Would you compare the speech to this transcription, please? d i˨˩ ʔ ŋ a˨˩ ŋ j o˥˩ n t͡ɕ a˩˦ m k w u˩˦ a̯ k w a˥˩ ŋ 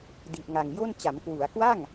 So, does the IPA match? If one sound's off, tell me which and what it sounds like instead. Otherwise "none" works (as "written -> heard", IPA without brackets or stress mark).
none